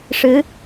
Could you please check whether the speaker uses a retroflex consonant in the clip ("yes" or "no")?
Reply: yes